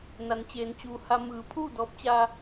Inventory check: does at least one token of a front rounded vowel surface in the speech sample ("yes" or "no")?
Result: no